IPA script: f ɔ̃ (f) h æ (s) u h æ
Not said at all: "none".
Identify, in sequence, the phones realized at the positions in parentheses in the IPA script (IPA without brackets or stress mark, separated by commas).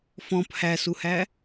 p, s